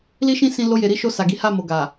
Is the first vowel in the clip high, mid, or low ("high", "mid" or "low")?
high